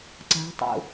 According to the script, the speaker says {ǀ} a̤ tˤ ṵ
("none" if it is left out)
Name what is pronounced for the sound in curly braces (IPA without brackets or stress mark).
ǀ